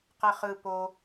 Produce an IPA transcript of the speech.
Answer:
q ɛ χ ɯ p o

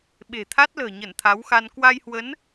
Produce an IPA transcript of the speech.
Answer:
ɓ e̤˨˩ t̪ʰ a˦˥ t̚ l ə̤ː˨˩ ɲ ə˧˩ n t̪ʰ a˨˦ w x a˧ n k w a˧ j h w ə˨˦ n

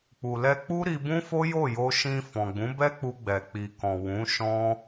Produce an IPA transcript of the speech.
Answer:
k͡p u˨ l ɛ˧ k͡p u˦ ɾ i˧ b ũ˦ f o˦ j o˦˨ j o˧ ʃ ĩ˧ f ɔ̃˨ ɡ͡b ũ˨˦ b ɛ˦ k͡p u˧ ɡ͡b ɛ˨ k͡p i˨ k ɔ̃˨ w ũ˨˦ ʃ ɔ̃˦

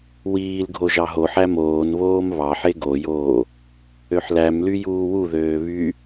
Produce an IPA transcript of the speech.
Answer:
w iː l ɡʱ o ʒ ɑ ɦ o ħ æ m oː n β oː m β ɑ ħ e ɡ o j oː | ø ħ l æ m l y j uː w u ð øː β y

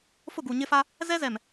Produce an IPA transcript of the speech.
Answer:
f ʊ˦˨ ɡ u˨ ɲ ɪ˦ f a˦ | z ɛ˦ z ɛ˨ m

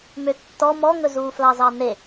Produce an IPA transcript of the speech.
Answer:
m ø tː ɔ m ɔ ŋ ɵ z uː f l ɑ z ɑ n e

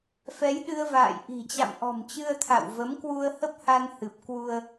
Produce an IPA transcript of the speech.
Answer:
f ɛ˨˦ j ɗ ɨ˧ ə̯ v a̰ː˧˨ j ʔ i̤˨˩ t͡ɕ a̰˧˨ m ʔ ɔ̤˨˩ m t͡ɕ ɨ˧ ə̯ t̪ʰ a̰˧˨ w v ə˨˦ m k w u˧ ə̯ h ə˦˥ p̚ h a˧ n h ɨ˨˩ p̚ k w u˧ ə̯

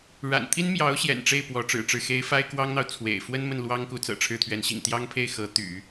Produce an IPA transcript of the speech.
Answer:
ɻ a̰˨˩ n t̪ʰ i˥ n m j ɑ˧˥ ʊ̯ ɕ j ɛ̰˨˩ n ʈ͡ʂ e˥˩ ɪ̯ p w ɔ˧˥ ʈ͡ʂ ɻ̩˨˩ ʈ͡ʂ ɻ̩˥˩ x e˧˥ ɪ̯ f a˥ ɪ̯ k w ɑ˥ ŋ n̪ ɑ˨ ʊ̯ t͡sʰ w ḛ˨˩ ɪ̯ f w ə˥ n m ə˥˩ n l w ɑ˥ ŋ k u˧˥ t͡s ɤ̰˨˩ ʈ͡ʂʰ ɻ̩˥˩ t̪ʰ ɥ ɛ˧˥ n ɕ ḭ˨˩ ŋ t̪ j ɑ˥ ŋ pʰ e˥˩ ɪ̯ x ɤ˧˥ t̪ y̰˨˩˦

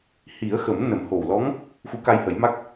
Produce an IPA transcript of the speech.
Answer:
h i˨˩˦ ə̯ x ə˨˩˦ m n ə˨˩˦ m h o˨˩ w l ɔ˧˥ ŋ | x u˧˥ k a˧ j h ə˨˩˦ j m a˦˥ k̚

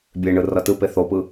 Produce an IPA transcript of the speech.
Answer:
bʲ e ɳ ɯ r ʌ t ɯ p e θ o p ɯ

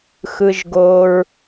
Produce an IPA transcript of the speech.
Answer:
x ɯ˧ ʒ ɡ o˧ ɹ

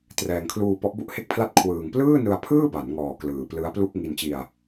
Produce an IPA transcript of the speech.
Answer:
t r ɛː˨˩ ŋ kʰ l uː˧ p ɔ˦˥ ʔ b u˥˩ ʔ h e˥˩ k̚ pʰ l a˥˩ t̚ kʰ w ɯː˨˩ ŋ p l ɯː˥˩ n ɯ˧ a̯ pʰ ɯː˥˩ b a˩˦ n ŋ ɔː˨˩ k l ɯː˨˩ p l ɯ˦˥ a̯ p l u˥˩ k̚ ŋ i˧ n t͡ɕ i˧ a̯

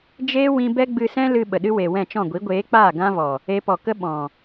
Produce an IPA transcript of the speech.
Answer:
d͡ʒ eː˦ w ĩ˧ b ɛ˦ ɡ͡b ɨ˧ s ɛ̃˦ l ɨ˧ ɓ ə˨ ɗ ɨ˦ w e˨ w ɛ̃˦˨ t͡ʃ ɔ̃˦˨ ɡʷ i˨˦ ɡʷ eː˨˦ k͡p aː˦˨ ɡ ã˦ v ɔ˨ | e˧ p ɔ˨ k ə˦ ɓ ɔ̃˨

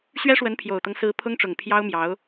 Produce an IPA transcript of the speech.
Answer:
ɕ ɥ ɛ˥ ʂ w ə˧˥ n pʰ j o˨˩ ʊ̯ t̪ ɤ˦ ŋ s ɹ̩˧˥ pʰ ʊ˥ ŋ ʈ͡ʂ ʊ˨˩ ŋ pʰ j ɑ˥ ʊ̯ m j ɑ˧˥ ʊ̯

